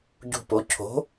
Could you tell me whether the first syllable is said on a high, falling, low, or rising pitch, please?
falling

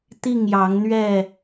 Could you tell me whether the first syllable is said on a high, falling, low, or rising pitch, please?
falling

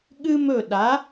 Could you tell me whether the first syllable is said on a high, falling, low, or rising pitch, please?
high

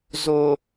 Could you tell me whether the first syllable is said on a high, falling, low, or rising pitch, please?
low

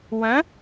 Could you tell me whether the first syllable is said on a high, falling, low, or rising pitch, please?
rising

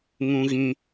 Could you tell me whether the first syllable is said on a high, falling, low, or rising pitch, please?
high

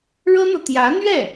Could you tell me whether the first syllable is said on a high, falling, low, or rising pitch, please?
high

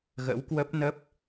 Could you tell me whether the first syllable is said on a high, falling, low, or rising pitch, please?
rising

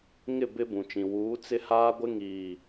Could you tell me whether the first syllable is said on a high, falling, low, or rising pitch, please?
falling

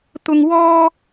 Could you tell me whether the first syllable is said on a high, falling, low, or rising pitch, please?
high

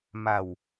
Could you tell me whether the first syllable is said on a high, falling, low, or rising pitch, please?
low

